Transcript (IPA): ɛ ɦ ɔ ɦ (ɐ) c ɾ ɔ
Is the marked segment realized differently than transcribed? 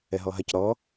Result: no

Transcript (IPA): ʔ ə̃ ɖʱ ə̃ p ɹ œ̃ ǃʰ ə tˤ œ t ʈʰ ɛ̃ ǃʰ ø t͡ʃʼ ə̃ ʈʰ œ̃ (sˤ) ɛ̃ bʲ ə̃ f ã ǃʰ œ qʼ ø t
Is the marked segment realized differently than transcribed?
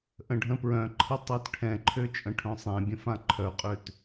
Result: no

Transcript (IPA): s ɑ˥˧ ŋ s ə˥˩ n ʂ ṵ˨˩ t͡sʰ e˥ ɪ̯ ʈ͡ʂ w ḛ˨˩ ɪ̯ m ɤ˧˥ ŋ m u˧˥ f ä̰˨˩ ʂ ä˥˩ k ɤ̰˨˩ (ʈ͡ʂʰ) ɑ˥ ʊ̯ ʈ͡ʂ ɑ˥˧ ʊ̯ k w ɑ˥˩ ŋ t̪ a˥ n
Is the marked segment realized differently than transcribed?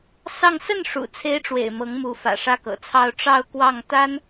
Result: yes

